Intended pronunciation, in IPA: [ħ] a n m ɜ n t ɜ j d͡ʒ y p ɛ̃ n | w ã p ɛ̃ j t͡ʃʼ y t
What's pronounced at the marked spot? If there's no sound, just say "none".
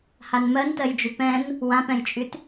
h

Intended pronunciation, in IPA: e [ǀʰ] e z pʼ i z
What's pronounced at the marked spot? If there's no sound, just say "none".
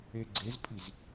ɡ͡ǀ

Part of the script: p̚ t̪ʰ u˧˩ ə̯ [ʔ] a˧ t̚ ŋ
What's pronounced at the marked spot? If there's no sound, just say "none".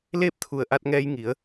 ʔ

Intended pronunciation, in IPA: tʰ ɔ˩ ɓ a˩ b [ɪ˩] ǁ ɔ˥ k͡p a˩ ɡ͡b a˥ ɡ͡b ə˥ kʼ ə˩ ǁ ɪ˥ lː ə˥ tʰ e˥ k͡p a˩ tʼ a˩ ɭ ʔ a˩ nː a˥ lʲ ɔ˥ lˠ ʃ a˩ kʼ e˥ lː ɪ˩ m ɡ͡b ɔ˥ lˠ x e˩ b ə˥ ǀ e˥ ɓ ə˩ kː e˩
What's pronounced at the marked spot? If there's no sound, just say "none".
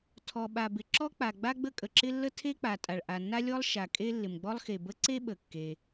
ɪ˩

